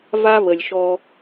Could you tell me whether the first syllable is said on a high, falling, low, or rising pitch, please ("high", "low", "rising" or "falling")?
high